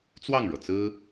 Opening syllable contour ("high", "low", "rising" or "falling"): falling